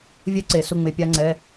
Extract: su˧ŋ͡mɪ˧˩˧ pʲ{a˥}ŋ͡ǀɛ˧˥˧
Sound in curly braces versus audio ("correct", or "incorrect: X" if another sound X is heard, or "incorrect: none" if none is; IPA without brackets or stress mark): correct